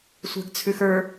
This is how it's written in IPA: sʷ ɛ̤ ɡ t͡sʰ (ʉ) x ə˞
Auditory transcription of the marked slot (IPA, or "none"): ʉ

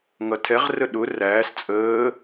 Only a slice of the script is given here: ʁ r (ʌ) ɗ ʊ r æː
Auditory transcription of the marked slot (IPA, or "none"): ə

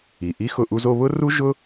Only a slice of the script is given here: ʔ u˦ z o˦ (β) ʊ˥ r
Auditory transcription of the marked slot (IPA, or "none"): β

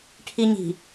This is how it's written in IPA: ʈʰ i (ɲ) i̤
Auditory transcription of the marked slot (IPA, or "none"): ɲ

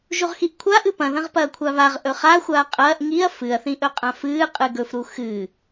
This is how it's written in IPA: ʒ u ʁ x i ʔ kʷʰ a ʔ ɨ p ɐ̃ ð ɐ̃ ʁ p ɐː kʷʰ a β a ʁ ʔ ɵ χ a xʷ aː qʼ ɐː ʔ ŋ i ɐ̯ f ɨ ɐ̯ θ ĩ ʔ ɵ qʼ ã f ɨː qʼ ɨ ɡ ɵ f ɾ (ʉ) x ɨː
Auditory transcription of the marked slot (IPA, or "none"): u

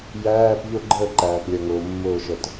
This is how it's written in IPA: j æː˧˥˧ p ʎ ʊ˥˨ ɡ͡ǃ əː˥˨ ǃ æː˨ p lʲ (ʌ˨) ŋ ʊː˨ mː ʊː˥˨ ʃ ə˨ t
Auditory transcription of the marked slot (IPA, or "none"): ʌ˨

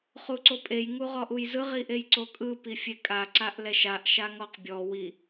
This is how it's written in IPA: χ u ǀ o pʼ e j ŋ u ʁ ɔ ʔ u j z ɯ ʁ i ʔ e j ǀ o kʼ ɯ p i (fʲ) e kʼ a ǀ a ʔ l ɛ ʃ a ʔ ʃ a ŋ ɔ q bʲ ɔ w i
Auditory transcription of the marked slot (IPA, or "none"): fʲ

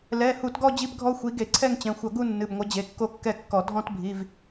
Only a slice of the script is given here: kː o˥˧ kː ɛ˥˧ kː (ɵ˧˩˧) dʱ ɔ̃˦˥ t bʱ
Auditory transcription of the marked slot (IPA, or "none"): ɔ˧˩˧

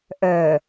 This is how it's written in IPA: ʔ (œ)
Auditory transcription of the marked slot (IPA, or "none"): œ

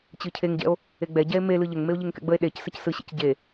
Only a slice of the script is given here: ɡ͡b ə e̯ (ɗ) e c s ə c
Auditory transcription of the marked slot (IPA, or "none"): ɗ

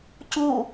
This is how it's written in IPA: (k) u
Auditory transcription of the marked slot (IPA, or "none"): c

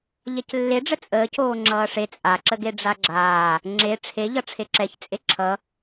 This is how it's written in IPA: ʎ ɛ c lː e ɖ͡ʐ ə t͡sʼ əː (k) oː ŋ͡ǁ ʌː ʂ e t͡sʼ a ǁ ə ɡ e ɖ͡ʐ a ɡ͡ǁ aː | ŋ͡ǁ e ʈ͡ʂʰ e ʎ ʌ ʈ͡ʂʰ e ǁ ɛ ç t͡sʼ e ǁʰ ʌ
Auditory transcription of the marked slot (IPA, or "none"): c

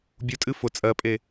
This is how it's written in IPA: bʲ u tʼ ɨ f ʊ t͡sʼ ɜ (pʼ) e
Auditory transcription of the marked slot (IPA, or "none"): pʼ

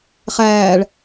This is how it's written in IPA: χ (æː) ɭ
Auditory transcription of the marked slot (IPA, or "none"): æː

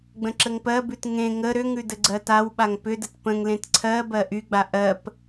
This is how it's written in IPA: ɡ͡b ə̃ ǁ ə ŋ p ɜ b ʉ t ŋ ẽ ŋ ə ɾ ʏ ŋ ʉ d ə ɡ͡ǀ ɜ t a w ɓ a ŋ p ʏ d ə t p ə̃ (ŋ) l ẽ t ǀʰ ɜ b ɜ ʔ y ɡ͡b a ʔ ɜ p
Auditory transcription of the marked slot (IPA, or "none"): ŋ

